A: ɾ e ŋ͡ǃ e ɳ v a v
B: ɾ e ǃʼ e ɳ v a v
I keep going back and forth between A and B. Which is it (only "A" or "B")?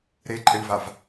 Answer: B